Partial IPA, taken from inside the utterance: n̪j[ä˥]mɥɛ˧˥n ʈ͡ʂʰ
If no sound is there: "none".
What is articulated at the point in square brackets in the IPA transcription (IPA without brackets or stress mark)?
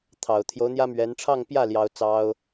ä˥